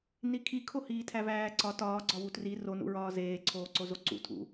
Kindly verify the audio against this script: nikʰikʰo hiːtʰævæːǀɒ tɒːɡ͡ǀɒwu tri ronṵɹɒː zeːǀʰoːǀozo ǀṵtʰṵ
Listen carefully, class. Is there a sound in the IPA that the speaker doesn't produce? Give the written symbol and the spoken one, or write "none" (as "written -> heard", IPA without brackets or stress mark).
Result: none